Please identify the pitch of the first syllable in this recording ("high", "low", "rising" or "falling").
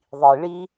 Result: low